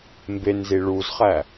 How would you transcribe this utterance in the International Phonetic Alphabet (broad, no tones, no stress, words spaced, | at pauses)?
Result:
mbenzi ɭuzχæ